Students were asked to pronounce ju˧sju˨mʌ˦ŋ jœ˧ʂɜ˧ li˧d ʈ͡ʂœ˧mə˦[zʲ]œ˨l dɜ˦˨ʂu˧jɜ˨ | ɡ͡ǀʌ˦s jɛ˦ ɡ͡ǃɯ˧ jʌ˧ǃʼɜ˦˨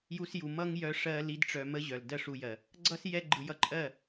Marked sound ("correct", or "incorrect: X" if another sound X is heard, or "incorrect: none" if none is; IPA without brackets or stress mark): incorrect: ʑ